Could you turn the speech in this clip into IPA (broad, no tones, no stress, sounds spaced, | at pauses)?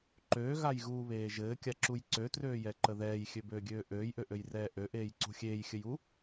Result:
ǃ øː ɣ a j ɣ uː β eː ʒ ɘː kʲ a ǁ u j ǀ ø t r øː j ɛ ǃ ə ð ɛː j xʲ ø b øː ɡʲ øː ʔ øː j ʔ ø ʔ ø j r ɛː ʔ ø ʔ eː j ǀ ṳ xʲ eː j xʲ ɘ j u